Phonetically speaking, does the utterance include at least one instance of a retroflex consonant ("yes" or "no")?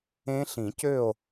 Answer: no